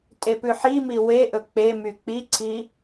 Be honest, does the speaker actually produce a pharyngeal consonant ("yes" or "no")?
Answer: yes